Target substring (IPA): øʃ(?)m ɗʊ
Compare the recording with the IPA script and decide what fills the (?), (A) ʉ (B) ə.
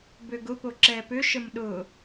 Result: B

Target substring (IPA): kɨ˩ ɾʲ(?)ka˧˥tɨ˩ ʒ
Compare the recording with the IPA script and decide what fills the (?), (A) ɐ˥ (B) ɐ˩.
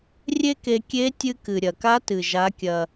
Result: B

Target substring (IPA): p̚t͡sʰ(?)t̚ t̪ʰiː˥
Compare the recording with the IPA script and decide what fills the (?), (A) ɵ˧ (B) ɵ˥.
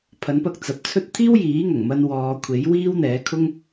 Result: B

